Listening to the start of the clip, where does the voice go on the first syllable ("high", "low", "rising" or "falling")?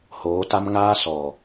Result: rising